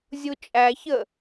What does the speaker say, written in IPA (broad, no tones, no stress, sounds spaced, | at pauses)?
zʲ u t͡ʃʼ æ ç ə